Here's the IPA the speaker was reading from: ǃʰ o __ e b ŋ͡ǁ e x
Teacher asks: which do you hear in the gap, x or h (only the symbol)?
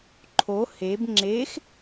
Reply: h